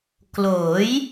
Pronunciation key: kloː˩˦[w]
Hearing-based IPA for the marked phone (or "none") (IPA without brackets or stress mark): j